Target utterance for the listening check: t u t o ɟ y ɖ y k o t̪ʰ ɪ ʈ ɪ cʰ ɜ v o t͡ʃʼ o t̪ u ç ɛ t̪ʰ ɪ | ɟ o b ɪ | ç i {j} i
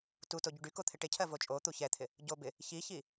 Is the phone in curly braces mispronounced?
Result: yes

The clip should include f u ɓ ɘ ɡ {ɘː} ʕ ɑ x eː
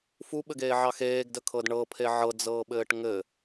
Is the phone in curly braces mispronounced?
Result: yes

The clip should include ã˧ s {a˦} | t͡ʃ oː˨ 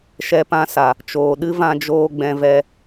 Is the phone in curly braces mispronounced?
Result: yes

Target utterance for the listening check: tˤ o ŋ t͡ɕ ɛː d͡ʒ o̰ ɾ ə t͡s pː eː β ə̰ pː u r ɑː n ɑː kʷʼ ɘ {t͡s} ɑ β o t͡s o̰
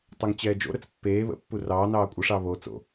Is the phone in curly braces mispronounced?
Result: yes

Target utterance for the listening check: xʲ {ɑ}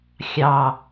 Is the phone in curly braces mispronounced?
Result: no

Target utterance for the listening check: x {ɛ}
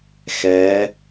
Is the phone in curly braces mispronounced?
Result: no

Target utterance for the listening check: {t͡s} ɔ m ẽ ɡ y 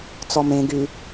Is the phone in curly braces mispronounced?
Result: no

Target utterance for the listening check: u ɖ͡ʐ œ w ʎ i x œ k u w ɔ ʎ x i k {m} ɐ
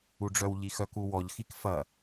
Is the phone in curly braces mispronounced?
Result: yes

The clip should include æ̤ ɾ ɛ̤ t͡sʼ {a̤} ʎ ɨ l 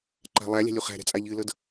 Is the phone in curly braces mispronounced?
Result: yes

